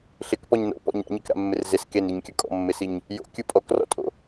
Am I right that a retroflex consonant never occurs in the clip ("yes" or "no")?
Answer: yes